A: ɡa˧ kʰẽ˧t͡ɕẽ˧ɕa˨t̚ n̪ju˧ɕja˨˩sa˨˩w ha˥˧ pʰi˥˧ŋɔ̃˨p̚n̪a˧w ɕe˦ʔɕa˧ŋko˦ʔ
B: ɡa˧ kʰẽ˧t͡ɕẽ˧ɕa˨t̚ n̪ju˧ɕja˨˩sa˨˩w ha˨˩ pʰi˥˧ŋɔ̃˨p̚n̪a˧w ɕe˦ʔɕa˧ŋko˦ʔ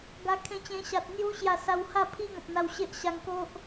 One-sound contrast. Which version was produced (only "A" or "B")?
A